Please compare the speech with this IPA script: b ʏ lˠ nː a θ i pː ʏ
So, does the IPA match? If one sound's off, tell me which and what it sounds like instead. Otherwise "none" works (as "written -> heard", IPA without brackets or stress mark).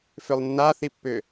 b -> f